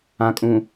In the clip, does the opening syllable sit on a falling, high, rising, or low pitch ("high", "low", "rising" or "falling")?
low